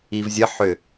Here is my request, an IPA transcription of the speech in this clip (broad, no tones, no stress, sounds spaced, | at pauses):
i v zʲ ə ħ ʏ